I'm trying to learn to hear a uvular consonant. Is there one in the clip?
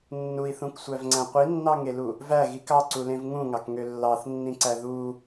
yes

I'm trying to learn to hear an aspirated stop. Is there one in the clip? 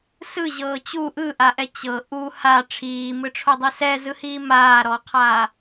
yes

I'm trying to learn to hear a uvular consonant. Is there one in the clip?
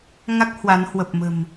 no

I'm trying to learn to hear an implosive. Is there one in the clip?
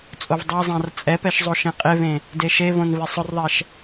no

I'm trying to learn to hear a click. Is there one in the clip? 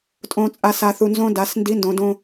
no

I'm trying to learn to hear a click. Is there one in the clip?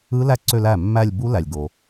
yes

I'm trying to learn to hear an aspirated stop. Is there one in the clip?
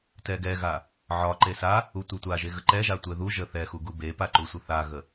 no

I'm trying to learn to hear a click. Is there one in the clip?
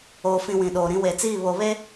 no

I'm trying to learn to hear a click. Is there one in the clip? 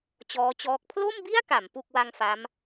no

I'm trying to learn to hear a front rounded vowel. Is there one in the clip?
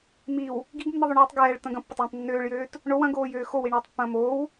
yes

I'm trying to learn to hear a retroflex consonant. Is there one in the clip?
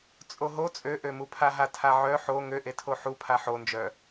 no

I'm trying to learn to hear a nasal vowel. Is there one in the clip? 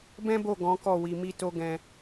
yes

